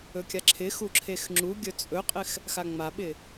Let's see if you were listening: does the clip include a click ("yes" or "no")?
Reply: yes